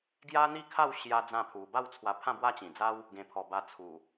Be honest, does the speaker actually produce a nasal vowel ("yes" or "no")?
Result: yes